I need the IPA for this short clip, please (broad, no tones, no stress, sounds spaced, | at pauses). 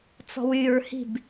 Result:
t͡s ɔ̤ w y ɹ h i̤ b